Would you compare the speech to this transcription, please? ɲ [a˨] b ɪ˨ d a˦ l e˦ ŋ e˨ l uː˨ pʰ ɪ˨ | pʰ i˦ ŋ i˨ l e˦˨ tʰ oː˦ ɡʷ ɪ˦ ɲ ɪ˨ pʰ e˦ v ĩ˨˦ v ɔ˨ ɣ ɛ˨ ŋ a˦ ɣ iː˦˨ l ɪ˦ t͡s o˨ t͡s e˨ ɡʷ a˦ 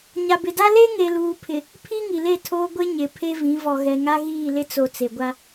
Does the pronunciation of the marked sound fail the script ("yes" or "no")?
no